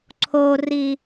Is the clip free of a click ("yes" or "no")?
no